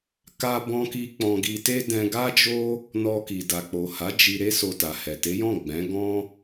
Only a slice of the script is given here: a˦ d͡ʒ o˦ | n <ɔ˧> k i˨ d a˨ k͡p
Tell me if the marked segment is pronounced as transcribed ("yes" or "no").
yes